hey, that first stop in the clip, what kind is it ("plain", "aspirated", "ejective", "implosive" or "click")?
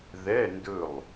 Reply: plain